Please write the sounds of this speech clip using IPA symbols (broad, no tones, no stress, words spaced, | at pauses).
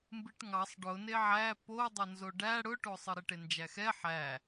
mbɨʈŋɑsˤ ɖʊ neʕæ po dˤonzoɖæ ɽʊʈosˤɨ ɾeʈend͡ʒæxɛ ħæ